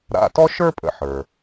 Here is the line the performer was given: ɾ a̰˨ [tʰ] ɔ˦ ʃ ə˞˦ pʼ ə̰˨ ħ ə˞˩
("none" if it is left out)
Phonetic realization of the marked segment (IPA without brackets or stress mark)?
t